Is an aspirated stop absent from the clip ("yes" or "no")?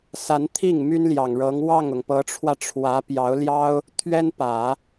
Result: no